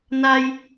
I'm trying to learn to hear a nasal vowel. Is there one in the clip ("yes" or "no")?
no